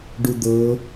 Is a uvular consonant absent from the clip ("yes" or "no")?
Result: yes